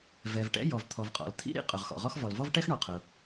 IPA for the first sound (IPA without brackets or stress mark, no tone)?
v